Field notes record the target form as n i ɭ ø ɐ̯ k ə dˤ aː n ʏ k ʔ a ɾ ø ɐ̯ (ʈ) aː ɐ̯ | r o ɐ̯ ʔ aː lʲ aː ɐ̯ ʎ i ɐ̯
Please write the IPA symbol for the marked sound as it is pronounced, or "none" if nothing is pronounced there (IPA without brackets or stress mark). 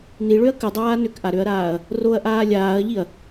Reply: ɾ